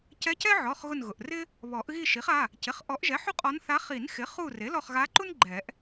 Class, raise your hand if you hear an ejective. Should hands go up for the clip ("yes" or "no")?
yes